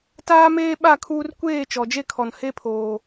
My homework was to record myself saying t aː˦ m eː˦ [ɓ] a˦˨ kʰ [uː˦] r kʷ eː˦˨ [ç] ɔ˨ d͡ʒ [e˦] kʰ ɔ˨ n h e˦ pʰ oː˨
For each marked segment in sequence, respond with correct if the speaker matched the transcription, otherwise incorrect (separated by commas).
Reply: correct, correct, incorrect, correct